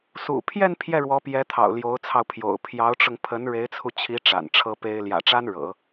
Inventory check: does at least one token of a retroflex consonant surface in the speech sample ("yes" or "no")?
yes